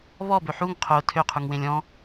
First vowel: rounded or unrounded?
rounded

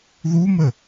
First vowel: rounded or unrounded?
rounded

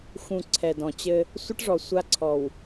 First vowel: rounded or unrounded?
rounded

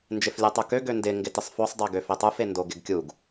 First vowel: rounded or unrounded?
unrounded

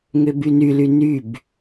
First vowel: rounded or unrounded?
rounded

